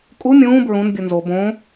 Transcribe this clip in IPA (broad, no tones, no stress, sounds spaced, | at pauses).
kʼ u mʲ ũː b ɹ ũ n bʲ u n z o b õ